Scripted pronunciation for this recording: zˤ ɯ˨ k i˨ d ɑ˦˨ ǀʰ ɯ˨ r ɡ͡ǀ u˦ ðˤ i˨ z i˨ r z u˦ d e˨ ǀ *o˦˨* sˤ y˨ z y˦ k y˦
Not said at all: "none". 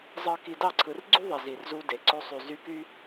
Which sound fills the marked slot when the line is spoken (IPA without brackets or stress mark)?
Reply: o˦